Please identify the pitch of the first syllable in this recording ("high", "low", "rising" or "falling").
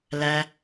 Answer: low